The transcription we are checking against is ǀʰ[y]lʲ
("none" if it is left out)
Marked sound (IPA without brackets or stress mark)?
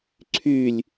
y